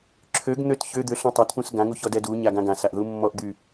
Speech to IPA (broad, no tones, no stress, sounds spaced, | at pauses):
ǁʰ ø ɡ n̪ ø t ç ø d̪ ø ɬ ɔ̃ tˤ a t p ũ s ɡ ã ŋ u ç ɔ d ɛ d u ɲ a ɡ ã ɡ ã s a ʔ ð u mː ɔ ʔ d̪ y